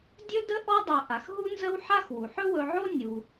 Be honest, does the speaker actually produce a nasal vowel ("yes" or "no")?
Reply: no